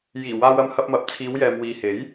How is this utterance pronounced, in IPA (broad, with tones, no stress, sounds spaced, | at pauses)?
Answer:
j iː˨˩ w aː˧ w ɐ˧ m h ɐ˧ p̚ m ɐ˨˥ p̚ t͡sʰ iː˨˧ w j ɛː˨ m w iː˨ h e˨˥ j